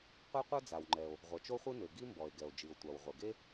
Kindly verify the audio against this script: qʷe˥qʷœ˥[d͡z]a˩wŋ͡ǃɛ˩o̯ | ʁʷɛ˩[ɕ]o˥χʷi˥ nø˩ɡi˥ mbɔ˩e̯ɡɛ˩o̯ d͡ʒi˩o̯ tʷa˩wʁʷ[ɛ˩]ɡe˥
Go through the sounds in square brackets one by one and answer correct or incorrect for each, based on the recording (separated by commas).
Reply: correct, incorrect, correct